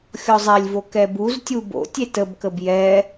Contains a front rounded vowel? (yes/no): no